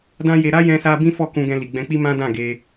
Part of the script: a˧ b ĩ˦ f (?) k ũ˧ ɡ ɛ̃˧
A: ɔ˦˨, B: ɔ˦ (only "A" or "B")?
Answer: A